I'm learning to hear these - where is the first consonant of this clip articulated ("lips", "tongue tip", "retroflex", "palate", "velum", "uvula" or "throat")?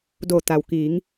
tongue tip